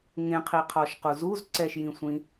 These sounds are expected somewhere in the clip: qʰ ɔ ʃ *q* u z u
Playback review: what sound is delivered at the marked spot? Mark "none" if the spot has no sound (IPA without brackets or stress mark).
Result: q